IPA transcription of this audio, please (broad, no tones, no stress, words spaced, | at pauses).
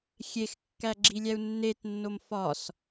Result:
xʲexkːæ ɡ͡ǁilʲæu̯nːetnːom fɒs